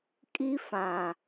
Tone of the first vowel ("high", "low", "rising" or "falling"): high